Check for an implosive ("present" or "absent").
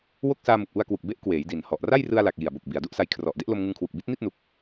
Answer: absent